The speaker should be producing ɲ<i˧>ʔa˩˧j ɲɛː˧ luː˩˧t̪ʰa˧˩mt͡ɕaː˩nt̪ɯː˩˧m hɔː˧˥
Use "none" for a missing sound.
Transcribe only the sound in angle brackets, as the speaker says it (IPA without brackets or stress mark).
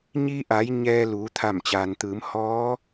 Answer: i˧